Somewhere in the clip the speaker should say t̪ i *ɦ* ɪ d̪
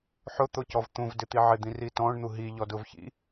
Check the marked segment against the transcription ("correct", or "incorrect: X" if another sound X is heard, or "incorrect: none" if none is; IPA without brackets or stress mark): incorrect: ʕ